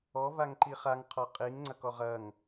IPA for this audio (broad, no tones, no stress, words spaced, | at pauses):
ɔvaŋǃi χaŋqʰɔ qʼiŋŋ͡ǀɐkɔʁ ɐŋ